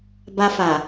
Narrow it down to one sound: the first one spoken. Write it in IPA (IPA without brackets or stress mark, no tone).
b